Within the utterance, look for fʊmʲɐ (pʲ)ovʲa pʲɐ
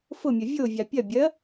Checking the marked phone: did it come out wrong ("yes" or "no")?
yes